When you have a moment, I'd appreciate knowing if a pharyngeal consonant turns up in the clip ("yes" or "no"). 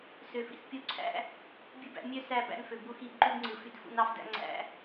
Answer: no